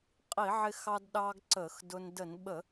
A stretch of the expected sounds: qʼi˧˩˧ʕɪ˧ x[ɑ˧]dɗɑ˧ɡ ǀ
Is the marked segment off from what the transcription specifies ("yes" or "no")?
no